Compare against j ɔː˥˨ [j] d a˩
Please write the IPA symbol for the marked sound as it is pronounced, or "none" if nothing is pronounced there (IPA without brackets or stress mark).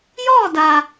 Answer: none